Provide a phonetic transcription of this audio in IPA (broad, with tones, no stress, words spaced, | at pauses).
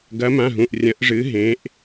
ɡɐ˨˦mã˩˧˩ɦũ˩˧˩ʔ rʲɐ̃˨˦ʔʐɨ˨˦ɦẽ˨˦ʔ